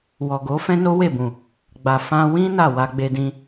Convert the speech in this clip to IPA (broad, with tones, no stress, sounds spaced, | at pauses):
w ɔ˨ ɡ o˨˦ f ɛ̃˦ n o˦ w e˦˨ b ũ˨ | ɡ͡b a˨ f ã˧ w ĩ˦ n a˦˨ w a˧ ɡ͡b e˧ d ĩ˧